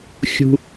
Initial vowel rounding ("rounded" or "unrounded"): rounded